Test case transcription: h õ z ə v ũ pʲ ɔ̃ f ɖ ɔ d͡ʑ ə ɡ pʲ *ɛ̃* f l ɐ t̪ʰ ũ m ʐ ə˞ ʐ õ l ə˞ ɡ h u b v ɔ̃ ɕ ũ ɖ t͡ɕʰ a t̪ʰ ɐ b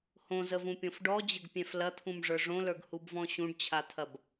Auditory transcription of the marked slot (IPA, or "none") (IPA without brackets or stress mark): ɛ̃